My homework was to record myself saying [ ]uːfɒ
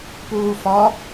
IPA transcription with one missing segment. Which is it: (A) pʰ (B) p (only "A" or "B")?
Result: B